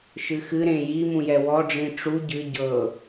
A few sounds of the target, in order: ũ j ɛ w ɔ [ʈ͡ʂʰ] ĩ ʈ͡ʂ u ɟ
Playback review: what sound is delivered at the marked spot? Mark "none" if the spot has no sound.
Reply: ɖ͡ʐ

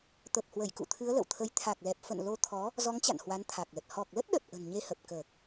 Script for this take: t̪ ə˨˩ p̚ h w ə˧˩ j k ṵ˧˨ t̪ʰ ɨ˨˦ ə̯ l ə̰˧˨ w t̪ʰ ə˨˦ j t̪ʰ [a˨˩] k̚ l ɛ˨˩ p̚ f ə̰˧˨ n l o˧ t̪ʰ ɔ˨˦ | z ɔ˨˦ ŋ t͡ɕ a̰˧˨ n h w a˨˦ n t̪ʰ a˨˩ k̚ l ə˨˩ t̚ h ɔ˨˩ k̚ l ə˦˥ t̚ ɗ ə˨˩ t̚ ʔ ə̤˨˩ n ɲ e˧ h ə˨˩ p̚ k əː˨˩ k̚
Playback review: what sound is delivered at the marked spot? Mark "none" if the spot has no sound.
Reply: a˨˩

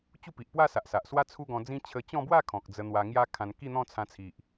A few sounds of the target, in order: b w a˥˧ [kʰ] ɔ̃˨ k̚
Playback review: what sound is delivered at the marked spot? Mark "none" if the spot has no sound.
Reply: kʰ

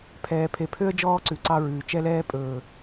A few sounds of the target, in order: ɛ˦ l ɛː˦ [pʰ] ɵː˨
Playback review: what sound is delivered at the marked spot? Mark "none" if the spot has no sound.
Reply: pʼ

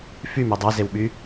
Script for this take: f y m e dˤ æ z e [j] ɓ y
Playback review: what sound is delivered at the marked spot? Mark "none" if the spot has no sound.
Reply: w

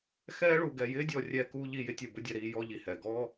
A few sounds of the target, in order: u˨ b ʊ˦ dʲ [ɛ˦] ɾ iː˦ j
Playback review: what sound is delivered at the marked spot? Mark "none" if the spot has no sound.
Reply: ɛ˨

